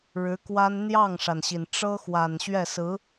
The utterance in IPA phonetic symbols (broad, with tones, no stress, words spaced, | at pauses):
ɻɻ̩˧˥kwa˥n n̪jɑ˥˩ŋʂa˩nɕi˩n ʈ͡ʂɤ˥xwa˨˩n ɕɥɛ˥˩sɹ̩˧˥